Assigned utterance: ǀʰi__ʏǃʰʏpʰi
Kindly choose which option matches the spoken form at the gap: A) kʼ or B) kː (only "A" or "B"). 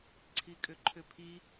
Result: A